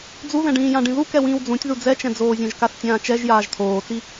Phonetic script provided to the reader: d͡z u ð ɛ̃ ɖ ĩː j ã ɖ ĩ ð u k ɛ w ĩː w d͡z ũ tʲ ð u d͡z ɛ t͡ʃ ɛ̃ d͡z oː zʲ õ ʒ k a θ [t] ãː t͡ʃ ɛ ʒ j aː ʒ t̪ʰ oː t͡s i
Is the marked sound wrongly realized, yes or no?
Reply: yes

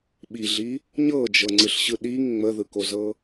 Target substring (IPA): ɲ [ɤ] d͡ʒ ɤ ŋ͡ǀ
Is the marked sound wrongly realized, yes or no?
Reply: no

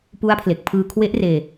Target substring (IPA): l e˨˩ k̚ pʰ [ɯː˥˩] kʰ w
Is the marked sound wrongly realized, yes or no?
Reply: yes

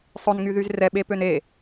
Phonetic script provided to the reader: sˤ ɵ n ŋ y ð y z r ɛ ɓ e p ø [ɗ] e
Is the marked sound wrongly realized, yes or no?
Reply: yes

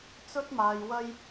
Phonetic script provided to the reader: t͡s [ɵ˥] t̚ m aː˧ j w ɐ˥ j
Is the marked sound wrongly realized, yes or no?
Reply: no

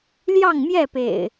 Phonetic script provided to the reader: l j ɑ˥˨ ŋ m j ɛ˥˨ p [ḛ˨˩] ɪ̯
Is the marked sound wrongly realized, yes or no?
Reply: no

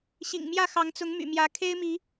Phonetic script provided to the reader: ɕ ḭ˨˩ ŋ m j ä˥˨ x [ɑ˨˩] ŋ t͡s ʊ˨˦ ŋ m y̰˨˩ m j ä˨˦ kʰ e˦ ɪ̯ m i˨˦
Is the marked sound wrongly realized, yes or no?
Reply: yes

